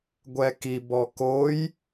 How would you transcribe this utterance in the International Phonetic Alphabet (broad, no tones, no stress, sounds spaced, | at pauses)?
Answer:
ɡʷ ɛ k i b ɔ k o j